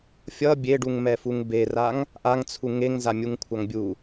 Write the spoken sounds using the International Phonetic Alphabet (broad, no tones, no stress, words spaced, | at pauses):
fʲʌ bʲeɖuŋmɛfuŋ beraŋ | ʔaŋt͡sʰu ŋeŋza mʲuŋkʷʰaŋbʲu